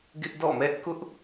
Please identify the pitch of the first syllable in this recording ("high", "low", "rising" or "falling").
high